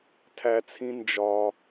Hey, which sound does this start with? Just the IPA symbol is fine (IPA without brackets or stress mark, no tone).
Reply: tʰ